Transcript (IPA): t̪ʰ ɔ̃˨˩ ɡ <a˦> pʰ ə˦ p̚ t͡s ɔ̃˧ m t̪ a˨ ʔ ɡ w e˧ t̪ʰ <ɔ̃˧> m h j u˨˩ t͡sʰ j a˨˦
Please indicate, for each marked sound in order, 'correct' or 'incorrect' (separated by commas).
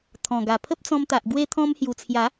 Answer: incorrect, correct